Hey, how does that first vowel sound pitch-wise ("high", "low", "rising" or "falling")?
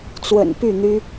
low